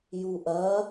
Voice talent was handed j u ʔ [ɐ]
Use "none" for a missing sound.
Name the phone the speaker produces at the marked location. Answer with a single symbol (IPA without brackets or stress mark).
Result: ɐ